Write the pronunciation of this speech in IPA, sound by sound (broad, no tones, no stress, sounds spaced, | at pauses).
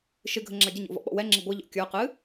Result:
ʃ ɨ ɡʱ ə ŋ͡ǁ a ɟ ə ɲ o̰ v ɔ̰ ɓ ɔ̰ w ɛ ŋ͡ǁ ɪ ɡʷ ɨ ʎ ɔ̰ kʲ ə˞ q ɨ